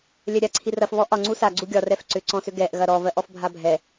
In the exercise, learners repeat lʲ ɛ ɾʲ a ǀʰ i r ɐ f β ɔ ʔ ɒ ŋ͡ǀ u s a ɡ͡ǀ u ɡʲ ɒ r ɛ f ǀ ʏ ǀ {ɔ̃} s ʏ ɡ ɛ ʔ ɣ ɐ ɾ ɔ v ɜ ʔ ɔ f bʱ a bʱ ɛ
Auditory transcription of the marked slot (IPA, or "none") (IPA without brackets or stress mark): ɔ̃